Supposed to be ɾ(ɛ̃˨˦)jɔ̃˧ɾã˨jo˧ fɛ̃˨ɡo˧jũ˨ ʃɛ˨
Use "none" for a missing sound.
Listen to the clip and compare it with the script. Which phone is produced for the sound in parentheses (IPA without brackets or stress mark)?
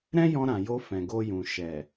ɛ̃˦